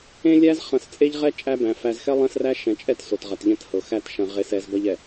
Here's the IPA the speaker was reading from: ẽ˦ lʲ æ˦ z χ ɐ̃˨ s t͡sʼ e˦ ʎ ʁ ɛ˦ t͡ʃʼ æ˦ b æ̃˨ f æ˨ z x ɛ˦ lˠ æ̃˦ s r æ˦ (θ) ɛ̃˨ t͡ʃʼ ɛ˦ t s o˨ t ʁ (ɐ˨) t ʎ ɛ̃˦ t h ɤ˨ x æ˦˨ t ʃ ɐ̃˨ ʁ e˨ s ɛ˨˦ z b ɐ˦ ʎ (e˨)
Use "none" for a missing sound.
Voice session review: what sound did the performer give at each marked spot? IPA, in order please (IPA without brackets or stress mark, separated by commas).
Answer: ʃ, ɐ˨, ɛ˨